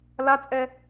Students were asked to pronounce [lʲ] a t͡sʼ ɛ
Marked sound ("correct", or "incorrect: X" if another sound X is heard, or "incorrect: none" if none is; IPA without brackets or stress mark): incorrect: l